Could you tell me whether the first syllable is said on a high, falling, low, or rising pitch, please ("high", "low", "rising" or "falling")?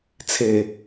low